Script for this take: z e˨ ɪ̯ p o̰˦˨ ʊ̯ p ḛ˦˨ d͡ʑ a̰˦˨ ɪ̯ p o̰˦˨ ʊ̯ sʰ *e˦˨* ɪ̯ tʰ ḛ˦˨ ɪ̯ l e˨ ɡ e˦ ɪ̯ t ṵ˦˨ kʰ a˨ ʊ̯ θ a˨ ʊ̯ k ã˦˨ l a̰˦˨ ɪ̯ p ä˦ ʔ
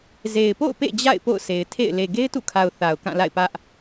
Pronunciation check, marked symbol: incorrect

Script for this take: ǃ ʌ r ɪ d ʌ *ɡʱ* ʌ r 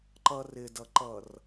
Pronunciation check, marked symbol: incorrect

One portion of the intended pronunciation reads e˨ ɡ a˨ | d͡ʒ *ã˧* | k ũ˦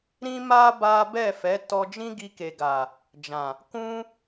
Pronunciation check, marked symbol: incorrect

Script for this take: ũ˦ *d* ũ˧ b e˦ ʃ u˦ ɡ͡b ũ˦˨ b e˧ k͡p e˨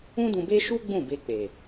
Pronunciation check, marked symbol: correct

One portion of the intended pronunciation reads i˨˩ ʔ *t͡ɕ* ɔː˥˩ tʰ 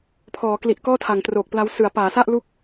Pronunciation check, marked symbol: incorrect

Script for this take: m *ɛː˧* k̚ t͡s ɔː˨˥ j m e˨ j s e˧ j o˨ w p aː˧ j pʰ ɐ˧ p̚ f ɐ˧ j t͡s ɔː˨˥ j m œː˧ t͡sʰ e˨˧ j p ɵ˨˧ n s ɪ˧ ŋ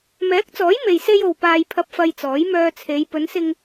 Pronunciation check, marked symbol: incorrect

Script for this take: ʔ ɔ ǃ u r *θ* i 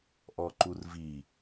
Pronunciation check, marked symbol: incorrect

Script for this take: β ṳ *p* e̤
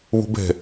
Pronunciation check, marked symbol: incorrect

